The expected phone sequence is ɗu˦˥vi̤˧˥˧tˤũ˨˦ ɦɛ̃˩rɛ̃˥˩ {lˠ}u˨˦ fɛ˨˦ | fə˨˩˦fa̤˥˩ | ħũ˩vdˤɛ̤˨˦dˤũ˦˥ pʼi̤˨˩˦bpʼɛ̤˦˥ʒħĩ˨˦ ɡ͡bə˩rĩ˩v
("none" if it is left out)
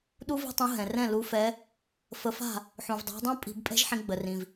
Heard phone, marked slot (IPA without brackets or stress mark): l